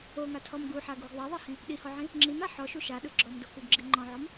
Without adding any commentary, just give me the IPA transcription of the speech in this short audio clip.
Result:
o ŋ a tʰ ɔ m ɡ u ħ a ɡ u ɡ ðˤ a ðˤ a h ĩ | ɗ i h ɔ ʕ ĩ | ŋ͡ǁ i m a ħ ɔ ʃ u ʃ a ɗ ɯ ɡ͡ǁ ɔ m d o k u ɡ ɡ͡ǁ i ŋ͡ǃ ɔ̃ ʕ ɔ m

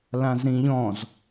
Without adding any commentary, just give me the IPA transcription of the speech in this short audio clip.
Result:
l ã z ɾ ĩ ʎ ɔ̃ z

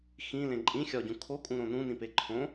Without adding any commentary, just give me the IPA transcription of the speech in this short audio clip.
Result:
x ĩ l ẽ ǃʼ ĩ xʲ ɒ ɟ ũ kʰ o kʼ ũ ɾ õ n ũ n ĩ p e ǃʰ õ

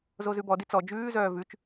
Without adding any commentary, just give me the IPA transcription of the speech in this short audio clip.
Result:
z o z ʉ b ɔ d i t͡s ɔ d͡ʒ ʉː z œː v ʉ t͡ʃ

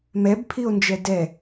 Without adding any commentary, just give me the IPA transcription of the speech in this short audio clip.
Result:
m ɛ b pʰ i o̯ n d͡ʒ ɛ d ɛ

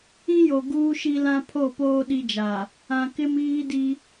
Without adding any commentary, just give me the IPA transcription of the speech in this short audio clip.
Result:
ĩ˦ j o˨ ɡ uː˦ ʃ i˦ l ã˦ pʰ o˦˨ p oː˦ ɗ i˦ d͡ʒ a˨ | ã˨ k ɪ˦ m iː˦ d i˦

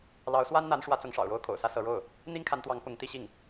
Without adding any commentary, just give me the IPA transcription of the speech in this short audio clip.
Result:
l ɑ˧˥ ʊ̯ s w a˥ n n̪ a˧˥ n ʂ w ä˧˥ t͡s ʊ˧˥ ŋ ʂ ɑ̰˨˩ ʊ̯ ɻ o˥ ʊ̯ kʰ o̰˨˩ ʊ̯ s ä˥ s ɤ˧˥ ɻ o˥˩ ʊ̯ | n̪ i˥ ŋ kʰ a˧˥ n t̪ w ɑ˧˥ ŋ p ʊ˧˥ ŋ t̪ i˥ ɕ i˥˩ ŋ

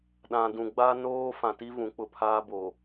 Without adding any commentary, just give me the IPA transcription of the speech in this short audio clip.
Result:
ɗ ã˨ d ũ˨ ɡ͡b aː˦ n oː˦ f ã˨ t i˦ v ũ˨˦ k͡p ʊ˨ pʰ aː˦ b o˨

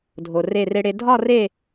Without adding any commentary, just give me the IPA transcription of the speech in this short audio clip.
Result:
dʱ o˧ r e˥˧ r e˥ ɽ e˥ dʱ ɒ˥˧ r e˥˧

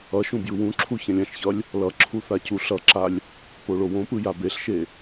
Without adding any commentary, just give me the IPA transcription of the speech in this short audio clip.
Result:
ʌ ʃ ũ b j ɯ w ũ ǁʰ u ç ɛ̃ lʲ ã ʃ ç ʌ lʲ | l ʌ ǁʰ u θ a c u ɬ ʌ ǁ a lʲ | p o ɭ o w õ p ɯ j a b e ɬ ʃ e

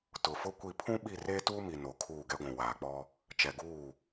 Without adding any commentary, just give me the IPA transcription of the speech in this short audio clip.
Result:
t ʊ˨ f ʊ˦ kʷ i˦˨ pʰ ũ˦ ɓ i˦˨ r eː˦ t uː˦ m i˨ n o˨ kʰ uː˦˨ ɡ ɛ˦ ɡʷ ũ˨ w aː˨ k͡p ɔ˦ | t͡ʃ ɛ˨ ɡ uː˦˨

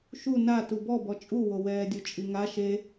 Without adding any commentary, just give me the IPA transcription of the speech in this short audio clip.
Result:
ʃ u n a t u b ɔ b ɔ t͡ʃʼ u w o w ɛː dʲ o t͡ʃʼ i ŋ a ʃ e

